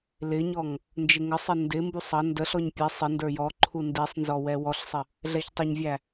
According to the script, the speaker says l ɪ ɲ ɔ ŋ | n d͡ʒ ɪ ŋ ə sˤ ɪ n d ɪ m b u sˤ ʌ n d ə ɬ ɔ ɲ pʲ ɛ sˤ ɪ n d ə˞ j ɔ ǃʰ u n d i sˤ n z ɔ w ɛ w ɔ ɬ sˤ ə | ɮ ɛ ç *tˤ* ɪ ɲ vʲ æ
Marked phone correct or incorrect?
correct